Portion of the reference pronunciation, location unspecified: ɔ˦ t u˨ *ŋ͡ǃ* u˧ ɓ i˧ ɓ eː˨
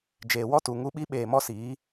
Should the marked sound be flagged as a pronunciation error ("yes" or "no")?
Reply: yes